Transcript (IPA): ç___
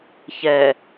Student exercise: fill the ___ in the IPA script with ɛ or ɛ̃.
ɛ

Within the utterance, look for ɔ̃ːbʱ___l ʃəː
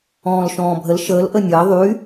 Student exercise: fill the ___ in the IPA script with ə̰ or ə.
ə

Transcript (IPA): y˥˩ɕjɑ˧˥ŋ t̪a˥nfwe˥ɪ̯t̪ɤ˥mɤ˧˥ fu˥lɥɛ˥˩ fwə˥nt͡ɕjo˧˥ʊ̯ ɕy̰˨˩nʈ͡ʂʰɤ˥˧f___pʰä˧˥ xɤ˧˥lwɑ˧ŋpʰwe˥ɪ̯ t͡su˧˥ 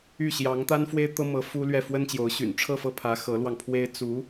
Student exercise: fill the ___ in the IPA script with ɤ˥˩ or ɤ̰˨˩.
ɤ˥˩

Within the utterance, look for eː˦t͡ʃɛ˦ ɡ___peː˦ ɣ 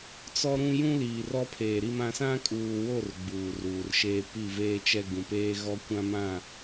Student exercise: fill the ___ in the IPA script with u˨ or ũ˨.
ũ˨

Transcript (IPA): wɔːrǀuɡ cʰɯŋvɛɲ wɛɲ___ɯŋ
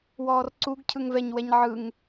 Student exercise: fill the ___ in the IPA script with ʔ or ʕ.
ʕ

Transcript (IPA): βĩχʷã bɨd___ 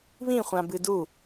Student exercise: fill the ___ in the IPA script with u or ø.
u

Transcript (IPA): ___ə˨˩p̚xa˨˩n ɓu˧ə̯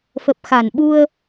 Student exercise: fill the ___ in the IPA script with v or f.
f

